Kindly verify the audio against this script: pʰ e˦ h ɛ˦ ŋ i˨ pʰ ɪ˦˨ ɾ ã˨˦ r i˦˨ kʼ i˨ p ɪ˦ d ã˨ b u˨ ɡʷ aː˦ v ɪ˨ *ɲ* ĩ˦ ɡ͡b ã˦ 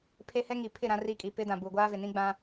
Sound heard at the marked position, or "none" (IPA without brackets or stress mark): n